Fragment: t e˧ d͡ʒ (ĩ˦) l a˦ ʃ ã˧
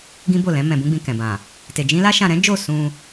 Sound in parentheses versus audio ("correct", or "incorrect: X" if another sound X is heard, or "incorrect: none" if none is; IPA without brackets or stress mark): correct